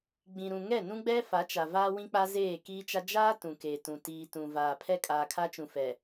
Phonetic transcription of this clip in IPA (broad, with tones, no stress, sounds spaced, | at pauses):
ɡ͡b ĩ˨ ɾ ũ˨ ŋ ɛ˦˨ n ũ˦ ɡ͡b ɛ˦ f a˨˦ t͡ʃ a˨ v aː˦ w ĩ˦ k͡p a˦ z eː˦˨ k iː˦ t͡ʃ a˦ d͡ʒ aː˦ t ũ˨ k eː˨ t ũ˨ t iː˨ t ũ˨ v aː˨ pʰ ɛ˦ kʼ aː˨ kʰ a˦ t͡ʃ ũ˨ f ɛ˨